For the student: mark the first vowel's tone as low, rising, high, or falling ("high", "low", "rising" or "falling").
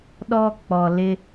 high